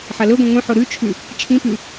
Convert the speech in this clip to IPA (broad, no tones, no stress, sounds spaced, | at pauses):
ħ ɐ l ɵ ɡʷ ẽ ŋʷ ĩ ħ o ɾ ʉ t͡ʃʰ ʉ | t͡ʃʰ ĩ p ʉ